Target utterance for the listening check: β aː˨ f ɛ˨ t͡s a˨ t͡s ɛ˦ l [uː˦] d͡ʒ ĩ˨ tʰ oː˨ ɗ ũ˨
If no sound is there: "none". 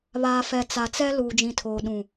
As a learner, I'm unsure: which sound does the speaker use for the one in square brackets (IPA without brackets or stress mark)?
uː˨